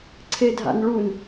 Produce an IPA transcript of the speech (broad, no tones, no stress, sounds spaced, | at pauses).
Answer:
ǀʰ e dʱ a̰ n ɭ u n